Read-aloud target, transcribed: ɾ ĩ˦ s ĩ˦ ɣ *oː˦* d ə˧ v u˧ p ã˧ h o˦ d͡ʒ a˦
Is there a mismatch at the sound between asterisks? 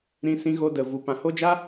yes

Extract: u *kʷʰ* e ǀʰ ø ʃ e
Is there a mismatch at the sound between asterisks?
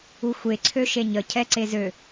yes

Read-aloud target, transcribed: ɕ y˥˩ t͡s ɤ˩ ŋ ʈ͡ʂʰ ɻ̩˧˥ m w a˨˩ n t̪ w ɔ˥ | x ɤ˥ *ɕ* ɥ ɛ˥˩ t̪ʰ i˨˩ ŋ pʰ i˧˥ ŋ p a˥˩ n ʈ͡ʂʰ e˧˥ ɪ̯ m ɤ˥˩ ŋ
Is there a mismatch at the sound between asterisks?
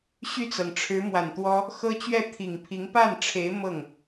yes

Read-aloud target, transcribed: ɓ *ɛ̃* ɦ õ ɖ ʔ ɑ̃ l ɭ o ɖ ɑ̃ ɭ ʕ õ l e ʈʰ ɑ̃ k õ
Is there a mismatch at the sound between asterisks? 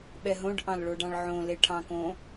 yes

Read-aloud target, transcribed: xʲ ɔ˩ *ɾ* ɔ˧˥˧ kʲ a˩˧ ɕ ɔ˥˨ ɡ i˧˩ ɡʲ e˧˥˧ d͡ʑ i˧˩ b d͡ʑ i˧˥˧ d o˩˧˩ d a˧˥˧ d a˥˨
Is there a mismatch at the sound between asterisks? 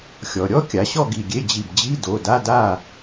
yes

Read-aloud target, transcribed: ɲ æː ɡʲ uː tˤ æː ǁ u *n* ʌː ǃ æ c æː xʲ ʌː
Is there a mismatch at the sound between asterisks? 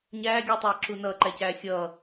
no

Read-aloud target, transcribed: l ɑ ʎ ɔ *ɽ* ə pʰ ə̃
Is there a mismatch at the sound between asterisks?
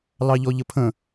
yes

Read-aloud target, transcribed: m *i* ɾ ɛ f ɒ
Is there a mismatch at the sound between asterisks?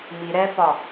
no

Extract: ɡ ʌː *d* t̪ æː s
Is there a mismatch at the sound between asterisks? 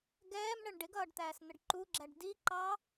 yes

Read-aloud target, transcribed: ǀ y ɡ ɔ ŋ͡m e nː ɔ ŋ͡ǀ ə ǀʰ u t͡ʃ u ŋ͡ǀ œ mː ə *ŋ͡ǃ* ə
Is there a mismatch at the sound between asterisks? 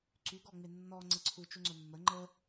no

